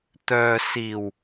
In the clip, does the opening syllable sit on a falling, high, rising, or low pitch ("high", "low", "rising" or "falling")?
low